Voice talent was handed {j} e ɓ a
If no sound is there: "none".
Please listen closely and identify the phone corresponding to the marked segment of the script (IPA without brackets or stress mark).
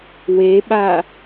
w